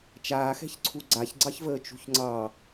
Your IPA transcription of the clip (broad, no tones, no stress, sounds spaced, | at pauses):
t͡ʃ aː x ɛ̤ ç ǀʰ u ɡ͡ǀ a ç ɡ͡ǀ ɑ ç v əː t͡ʃ ṳ ç ŋ͡ǀ ɑ